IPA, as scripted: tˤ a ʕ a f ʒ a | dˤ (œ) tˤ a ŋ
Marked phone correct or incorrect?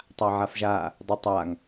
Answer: correct